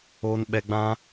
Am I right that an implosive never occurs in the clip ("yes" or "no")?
no